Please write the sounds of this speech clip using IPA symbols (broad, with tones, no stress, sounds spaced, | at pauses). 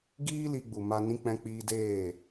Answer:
ɡ iː˦ l i˧ ɡ͡b u˨ m a˧ n ĩ˧ k͡p ɛ̃˧ k͡p iː˧ d eː˦˨